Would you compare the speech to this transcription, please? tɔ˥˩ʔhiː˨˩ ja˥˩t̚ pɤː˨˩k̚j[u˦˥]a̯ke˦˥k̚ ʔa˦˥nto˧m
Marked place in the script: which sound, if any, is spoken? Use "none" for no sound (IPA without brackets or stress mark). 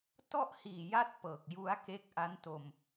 u˦˥